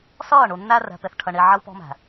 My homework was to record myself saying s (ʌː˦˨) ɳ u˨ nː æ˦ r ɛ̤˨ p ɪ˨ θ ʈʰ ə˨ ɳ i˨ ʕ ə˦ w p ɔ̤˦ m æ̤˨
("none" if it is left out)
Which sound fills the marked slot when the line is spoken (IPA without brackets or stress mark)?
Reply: ʌː˦˨